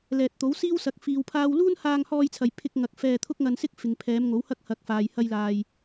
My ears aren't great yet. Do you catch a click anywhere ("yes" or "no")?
no